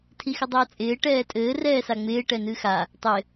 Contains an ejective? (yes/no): yes